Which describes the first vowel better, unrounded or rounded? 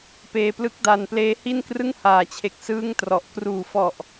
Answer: unrounded